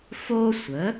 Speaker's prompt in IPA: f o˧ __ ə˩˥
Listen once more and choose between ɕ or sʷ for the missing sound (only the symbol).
sʷ